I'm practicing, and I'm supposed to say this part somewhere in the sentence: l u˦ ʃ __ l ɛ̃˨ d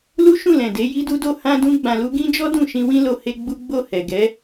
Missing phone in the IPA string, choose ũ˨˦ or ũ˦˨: ũ˦˨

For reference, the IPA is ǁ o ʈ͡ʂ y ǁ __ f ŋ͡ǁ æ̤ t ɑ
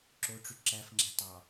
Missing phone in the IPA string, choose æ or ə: æ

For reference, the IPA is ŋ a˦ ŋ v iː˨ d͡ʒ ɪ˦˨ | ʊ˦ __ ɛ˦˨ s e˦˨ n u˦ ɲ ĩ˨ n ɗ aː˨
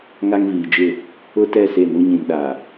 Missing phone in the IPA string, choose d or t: t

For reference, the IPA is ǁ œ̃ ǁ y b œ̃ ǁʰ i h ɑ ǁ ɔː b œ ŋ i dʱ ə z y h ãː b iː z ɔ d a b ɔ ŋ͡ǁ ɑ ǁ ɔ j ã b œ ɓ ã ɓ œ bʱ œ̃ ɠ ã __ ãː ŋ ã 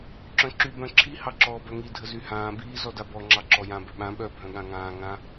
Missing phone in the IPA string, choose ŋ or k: ŋ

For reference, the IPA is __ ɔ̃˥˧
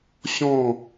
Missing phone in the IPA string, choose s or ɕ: ɕ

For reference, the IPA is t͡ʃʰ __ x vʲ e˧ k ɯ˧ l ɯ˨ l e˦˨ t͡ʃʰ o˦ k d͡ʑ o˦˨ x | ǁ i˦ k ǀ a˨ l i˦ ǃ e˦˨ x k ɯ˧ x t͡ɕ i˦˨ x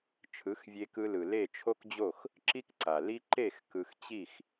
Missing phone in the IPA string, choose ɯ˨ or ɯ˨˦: ɯ˨˦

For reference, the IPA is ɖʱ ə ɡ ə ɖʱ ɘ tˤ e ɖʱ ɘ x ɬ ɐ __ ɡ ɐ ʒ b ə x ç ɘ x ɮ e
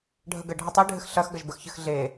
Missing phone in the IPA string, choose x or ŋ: x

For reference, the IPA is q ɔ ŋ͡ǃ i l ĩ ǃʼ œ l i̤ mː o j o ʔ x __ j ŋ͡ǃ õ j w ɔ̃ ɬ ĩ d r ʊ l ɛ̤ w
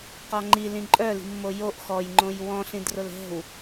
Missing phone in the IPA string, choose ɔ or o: ɔ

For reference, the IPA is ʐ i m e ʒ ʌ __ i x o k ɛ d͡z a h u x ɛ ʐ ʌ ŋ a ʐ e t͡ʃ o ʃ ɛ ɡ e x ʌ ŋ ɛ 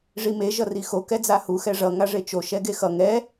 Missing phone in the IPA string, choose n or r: r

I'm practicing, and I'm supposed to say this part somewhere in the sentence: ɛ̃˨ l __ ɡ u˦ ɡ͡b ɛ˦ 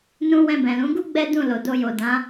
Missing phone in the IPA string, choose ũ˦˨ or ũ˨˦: ũ˨˦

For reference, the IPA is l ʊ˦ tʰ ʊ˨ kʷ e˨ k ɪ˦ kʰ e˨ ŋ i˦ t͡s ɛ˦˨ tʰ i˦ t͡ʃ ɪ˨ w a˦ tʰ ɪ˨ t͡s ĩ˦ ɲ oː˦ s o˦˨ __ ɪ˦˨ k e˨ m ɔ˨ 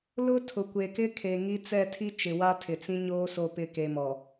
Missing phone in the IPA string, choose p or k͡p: p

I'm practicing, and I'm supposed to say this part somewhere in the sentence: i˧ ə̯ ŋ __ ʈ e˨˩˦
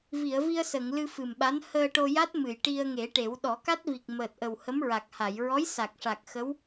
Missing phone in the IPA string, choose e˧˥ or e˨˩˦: e˨˩˦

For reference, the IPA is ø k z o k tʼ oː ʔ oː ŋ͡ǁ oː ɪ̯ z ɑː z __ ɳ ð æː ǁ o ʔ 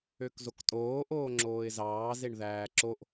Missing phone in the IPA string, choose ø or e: e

